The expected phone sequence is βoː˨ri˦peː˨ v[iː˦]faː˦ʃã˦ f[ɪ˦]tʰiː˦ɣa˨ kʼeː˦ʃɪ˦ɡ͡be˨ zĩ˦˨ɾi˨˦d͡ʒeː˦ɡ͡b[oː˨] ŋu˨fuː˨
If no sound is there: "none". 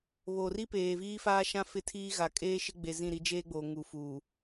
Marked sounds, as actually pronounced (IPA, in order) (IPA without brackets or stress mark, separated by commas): iː˦, ɪ˦, oː˨